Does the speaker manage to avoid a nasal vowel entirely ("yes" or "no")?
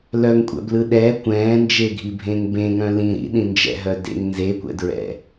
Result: no